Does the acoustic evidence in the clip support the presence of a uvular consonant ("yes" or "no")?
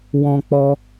no